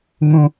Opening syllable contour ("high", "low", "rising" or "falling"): high